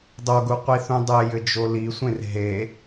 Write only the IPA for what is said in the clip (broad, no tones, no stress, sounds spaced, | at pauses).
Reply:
dˤ o ɡ u qʷ i θ ũ dˤ ɘ j ɘ d͡ʒ o l i sʷ ẽ r ɦ e